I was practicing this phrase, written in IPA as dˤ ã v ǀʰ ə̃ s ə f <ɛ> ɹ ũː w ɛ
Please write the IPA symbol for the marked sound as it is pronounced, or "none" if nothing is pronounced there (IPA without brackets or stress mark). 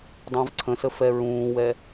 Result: ɛ